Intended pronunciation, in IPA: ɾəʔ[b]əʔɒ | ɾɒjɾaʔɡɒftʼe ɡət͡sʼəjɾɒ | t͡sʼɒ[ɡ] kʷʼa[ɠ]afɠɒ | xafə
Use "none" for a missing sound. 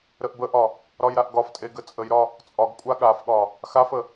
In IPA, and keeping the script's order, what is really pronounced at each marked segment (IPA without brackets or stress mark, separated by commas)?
b, ɡ, ɠ